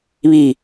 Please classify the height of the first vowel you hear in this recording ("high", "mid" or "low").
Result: high